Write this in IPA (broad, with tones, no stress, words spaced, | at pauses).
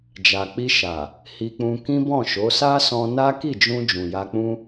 d͡ʒa˨k͡pi˧ ʃa˨ | hi˧k͡pũ˧ kĩ˦bɔ̃˦˨ʃo˨˦ sa˦sɔ̃˧na˦ ki˦˨d͡ʒũ˧ d͡ʒũ˨ja˧k͡pũ˦